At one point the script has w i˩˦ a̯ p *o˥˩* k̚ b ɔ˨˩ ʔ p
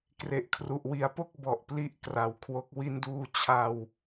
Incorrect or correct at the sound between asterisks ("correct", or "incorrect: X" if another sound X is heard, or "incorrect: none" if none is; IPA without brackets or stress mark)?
correct